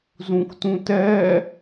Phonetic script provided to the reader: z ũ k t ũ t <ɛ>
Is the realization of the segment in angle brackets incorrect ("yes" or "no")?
no